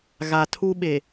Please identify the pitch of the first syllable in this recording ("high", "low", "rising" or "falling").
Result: low